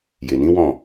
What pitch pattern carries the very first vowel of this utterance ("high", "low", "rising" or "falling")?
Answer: low